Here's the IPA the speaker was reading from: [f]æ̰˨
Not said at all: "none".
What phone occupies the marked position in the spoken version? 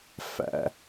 f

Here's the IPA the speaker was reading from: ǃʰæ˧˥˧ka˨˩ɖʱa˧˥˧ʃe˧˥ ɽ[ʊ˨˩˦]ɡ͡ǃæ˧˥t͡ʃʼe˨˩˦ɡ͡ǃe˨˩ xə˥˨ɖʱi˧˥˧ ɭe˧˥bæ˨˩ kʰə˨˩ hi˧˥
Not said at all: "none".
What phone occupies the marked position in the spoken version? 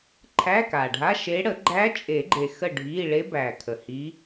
ə˨˩˦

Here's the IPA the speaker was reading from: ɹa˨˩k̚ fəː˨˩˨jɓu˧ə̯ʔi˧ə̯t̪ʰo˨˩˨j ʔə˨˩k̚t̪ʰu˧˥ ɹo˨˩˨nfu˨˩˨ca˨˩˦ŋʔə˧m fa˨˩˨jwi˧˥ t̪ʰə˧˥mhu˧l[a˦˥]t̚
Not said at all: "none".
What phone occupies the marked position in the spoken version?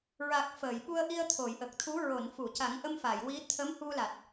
a˨˩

